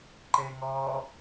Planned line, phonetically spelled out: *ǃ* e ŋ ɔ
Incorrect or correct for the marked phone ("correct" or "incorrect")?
correct